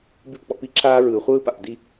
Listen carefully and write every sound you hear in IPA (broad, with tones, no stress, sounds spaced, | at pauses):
b i˥˩ p k͡p ɔ̰˩˥ p i˥ ǁʰ aː˥ ɹ ɯː˩ χʷ ɯː˥ p a̰˩ p d i˥˩